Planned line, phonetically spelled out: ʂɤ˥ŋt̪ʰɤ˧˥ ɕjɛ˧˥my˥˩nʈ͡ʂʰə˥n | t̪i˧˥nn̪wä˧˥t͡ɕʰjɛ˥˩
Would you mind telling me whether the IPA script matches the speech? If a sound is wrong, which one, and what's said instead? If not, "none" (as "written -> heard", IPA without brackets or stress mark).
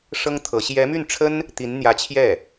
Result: w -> j